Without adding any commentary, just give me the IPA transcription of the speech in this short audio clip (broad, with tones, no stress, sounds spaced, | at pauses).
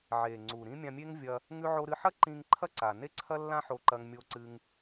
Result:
ʕ e˩ ŋ͡ǀ u˩ ɾ ĩ˥ mʲ ã˧ mʲ e˥ ŋ vʲ ɐ˧ | ŋ ʉ˧ ʕ o˧ ɾ ɨ˧ ħ ɐ˥ ǃ ĩ˧ ŋ ǃʰ ɐ˥ ǀ a˩ n e˥ ǀʰ ɐ˥ lː ã˥ ħ o˧ ǃ ɐ˧ ŋ mʲ o˧ ǀ ɨ˧ ŋ